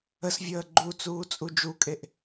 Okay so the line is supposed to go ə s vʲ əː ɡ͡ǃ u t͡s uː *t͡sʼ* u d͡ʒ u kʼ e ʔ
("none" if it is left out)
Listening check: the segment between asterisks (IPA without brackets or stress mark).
t͡sʼ